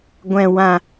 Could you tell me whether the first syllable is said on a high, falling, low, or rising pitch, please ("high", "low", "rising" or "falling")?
low